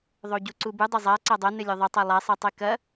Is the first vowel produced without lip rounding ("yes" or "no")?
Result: no